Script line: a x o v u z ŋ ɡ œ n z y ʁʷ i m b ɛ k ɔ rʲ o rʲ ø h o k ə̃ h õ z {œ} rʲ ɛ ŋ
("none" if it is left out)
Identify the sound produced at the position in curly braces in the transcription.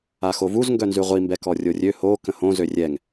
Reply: ø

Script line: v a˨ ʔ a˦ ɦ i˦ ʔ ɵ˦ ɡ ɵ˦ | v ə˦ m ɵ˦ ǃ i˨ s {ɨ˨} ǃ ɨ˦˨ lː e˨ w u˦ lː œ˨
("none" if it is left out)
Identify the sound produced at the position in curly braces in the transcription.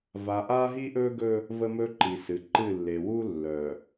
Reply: ɨ˨˦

